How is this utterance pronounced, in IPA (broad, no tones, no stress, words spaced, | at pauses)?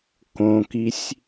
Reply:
kõkisʲ